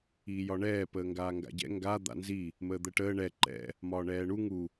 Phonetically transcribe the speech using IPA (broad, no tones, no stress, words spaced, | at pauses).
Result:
iːjɒɳɛː pəːŋɡaːŋɡa̰ɟɛ̰ ŋɡa d̪a̰nzi | məːd̪əʈəː ɳɛ ǃɛ̰ | mɒːɳɛːɳu ŋu